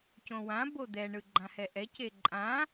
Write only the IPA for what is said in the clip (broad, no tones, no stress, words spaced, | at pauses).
cõwã bod̪ɛ ɳɯɡ͡ǃãhɛʔɛ ceǃʼã